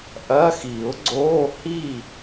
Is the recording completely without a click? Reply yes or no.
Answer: no